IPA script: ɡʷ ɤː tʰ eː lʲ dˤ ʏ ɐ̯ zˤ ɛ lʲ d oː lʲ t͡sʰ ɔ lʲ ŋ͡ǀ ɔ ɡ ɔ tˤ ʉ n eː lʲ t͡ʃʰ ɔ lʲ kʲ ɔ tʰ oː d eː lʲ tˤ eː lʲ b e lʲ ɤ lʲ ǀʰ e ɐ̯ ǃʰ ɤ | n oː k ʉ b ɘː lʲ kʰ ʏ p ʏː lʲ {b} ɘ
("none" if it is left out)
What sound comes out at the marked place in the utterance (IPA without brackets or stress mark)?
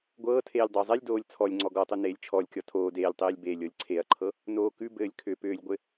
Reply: ɡʷ